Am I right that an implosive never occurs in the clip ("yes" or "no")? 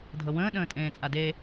no